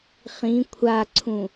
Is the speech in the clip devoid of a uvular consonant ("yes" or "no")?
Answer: no